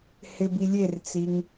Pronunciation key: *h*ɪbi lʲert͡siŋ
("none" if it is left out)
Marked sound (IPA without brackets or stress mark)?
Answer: h